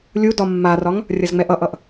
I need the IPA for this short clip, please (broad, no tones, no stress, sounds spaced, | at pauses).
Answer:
lʲ u d ɒ mː a r ɒ ŋ | rʲ ɐ z ŋ͡m ɛ ʔ ʌ ʔ ʌ ʔ